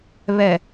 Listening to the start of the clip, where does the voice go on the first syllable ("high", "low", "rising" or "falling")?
low